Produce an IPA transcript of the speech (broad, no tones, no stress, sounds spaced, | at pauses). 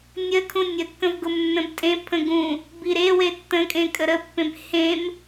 nʲ ə kʰ ũ nʲ ə kː ə̃ v ɡ ʊ m nː ə̃ b tʼ ẽ pʰ ə̃ ɡ ũ | b i ɾ e w e tː ə̃ kʼ ẽ kʼ ə ɾ ə pː ẽ b h ẽ m